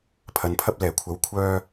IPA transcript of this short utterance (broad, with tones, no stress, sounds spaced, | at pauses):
pʰ ɐ˨˧ n pʰ ɐ˥ p̚ l ɛː˨˩ kʷʰ ɐ˨˥ w kʷʰ œː˧